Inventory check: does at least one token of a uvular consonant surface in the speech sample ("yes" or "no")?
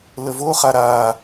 yes